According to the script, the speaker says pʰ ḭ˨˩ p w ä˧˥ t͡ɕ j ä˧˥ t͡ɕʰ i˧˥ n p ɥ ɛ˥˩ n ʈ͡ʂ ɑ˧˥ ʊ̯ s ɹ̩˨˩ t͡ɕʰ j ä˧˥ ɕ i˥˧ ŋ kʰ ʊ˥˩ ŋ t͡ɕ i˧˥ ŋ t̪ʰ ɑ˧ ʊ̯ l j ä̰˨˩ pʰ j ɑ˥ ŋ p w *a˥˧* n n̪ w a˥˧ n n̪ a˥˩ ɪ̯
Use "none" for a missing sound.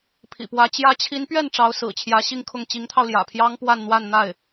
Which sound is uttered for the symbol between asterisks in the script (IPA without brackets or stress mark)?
a˥˧